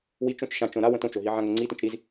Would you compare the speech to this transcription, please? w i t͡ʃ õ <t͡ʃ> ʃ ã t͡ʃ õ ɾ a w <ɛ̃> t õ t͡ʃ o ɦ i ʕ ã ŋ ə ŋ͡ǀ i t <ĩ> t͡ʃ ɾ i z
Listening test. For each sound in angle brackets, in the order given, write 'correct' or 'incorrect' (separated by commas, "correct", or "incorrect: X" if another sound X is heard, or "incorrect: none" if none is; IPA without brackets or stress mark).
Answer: correct, incorrect: ə̃, correct